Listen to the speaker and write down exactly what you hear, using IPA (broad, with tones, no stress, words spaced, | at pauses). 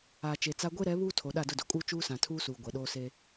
aː˨t͡ʃe˨t͡sa˦ ɡʷe˦ɾɛ˨˦ βuː˦tʰo˨ ɗa˦˨dʊ˦˨do˨kʼuː˦ t͡ʃuː˦sã˨ tʰuː˦suː˨ ɡʷɛ˨ ɗoː˦seː˦